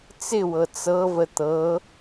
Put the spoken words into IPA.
t͡sɪwɤ t͡sɤvə t̪ɤ

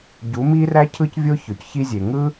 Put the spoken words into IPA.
ɟu˨˦mi˦ræ˦cʰɯ˦c vʲo˦çø˨cçi˦zʲe˨ ŋɯ˦

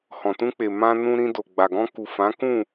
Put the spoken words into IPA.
hɔ̃˨tũ˧k͡pe˨ mã˧nũ˧ɾĩ˧do˨ ɡ͡ba˨ɡɔ̃˧ku˨ fã˨˦kũ˦˨

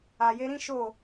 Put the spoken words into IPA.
a˨je˧ɾĩ˦ ʃo˦˨

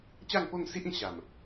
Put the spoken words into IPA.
t͡ɕa˥˧ŋpo˥˧ŋsi˦ʔĩ˧ ɕa˨˩m

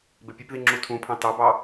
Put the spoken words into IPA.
bepʲepði ŋ͡ǁutʰũpʰɑ̃ tɑbɑ

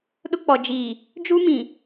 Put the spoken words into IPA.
ɗʊ˦k͡pɔ˨ d͡ʒiː˨ | d͡ʒu˦mĩ˨

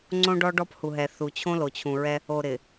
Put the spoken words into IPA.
ŋ͡ǀõ˦ɖɔ˦ɖɔ˦phu˨ ɦɛ˨θu˨t͡ɕʰõ˦lo˨ t͡ɕʰũ˨ɹɛ˦ | o˨ɾɪ˨

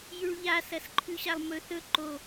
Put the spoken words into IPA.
jʉɭʎa sɐsǃʰʉɕalˠmɵ θɵ ǃo

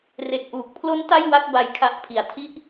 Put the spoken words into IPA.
re˨˩k̚ʔuː˨˩k̚pʰlo˦˥n ta˥˩j wa˥˩k̚ba˦˥jkʰa˦˥ʔ pʰi˨˩a̯tʰi˥˩ʔ

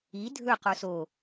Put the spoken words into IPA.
i dʱɵ qoso

